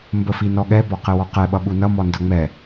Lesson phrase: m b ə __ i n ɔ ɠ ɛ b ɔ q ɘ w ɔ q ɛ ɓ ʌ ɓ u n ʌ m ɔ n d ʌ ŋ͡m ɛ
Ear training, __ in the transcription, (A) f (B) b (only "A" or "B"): A